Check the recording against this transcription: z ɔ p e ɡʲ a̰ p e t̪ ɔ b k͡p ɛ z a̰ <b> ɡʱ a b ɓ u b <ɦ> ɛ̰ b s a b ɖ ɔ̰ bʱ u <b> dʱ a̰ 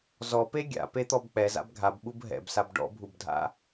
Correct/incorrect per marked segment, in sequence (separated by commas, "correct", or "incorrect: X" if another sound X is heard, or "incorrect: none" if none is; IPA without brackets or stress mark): correct, correct, correct